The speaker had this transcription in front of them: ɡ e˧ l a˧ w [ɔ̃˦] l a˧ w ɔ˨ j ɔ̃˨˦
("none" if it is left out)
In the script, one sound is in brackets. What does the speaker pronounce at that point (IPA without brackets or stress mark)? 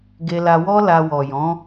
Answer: ɔ˦